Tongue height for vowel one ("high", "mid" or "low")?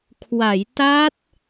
low